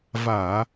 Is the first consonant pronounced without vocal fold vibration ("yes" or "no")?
no